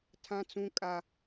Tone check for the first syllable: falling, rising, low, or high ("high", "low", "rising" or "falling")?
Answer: high